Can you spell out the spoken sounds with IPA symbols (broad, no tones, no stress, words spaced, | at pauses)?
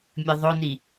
mʲɨðˤoni